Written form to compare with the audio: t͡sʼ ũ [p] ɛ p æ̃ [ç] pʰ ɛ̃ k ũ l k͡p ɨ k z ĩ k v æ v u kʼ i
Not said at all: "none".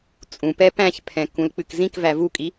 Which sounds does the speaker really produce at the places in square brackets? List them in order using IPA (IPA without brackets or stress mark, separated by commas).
p, ç